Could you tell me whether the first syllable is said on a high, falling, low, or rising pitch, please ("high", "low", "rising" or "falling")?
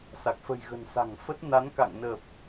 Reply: low